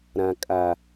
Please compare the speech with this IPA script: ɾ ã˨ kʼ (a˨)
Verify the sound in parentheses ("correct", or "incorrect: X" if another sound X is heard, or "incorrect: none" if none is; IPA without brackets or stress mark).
correct